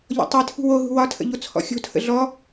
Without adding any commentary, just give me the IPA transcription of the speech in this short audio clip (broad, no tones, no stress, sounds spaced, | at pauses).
ʎ ɔ̰ tˤ e tʰ ṳ w o ɦ ṳ w ɒ tʰ ə̰ ʎ o t͡sʰ ɔ̰ xʲ o̤ tʰ ə̰ ɮ ɔ